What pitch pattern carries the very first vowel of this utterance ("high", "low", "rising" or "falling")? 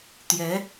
rising